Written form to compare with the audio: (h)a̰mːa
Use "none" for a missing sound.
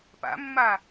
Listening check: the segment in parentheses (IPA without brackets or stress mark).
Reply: p